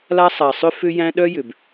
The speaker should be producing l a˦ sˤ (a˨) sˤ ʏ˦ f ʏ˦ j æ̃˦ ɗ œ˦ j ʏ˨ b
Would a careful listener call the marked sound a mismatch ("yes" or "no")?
no